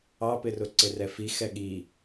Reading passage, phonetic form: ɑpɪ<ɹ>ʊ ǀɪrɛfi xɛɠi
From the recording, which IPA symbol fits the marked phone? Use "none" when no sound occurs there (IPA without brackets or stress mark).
r